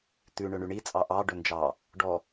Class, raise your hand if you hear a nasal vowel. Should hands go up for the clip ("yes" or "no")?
no